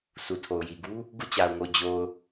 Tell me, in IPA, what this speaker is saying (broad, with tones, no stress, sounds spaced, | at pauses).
s u˨ tʰ o˨ ʊ̯ j i˨ ɡ u˦ | ɡ ṵ˦˨ t͡ɕ a˨ ʊ̯ ŋ o˨ d͡ʑ o˨ ʊ̯